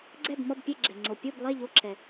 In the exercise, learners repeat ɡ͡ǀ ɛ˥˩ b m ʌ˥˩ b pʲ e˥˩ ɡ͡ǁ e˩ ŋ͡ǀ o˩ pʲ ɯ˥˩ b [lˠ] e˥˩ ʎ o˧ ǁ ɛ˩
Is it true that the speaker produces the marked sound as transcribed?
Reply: yes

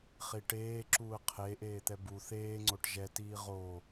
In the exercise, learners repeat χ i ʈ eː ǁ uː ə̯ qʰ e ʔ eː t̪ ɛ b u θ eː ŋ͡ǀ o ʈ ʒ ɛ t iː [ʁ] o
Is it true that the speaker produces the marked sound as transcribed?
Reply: yes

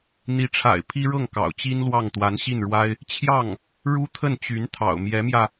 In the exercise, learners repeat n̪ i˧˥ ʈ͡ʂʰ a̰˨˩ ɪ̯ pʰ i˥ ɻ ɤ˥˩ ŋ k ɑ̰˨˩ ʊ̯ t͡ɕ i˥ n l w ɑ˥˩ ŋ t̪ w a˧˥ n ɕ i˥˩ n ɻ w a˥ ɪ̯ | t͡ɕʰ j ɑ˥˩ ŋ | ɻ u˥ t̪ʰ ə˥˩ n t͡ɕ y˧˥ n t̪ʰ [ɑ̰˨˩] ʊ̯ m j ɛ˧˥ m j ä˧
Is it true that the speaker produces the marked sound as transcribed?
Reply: yes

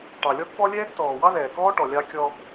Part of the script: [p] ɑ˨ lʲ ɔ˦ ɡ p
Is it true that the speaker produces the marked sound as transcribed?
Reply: no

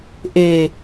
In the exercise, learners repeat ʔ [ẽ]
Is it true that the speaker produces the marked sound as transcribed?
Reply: no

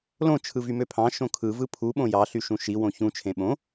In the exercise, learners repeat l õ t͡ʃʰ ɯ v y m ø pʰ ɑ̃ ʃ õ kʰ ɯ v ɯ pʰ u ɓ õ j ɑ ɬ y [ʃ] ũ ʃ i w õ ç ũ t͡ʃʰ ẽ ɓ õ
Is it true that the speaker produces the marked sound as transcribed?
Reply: yes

